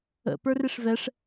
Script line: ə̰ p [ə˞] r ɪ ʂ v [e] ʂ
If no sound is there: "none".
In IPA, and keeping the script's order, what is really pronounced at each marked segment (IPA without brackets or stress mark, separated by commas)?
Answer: ə˞, ɛ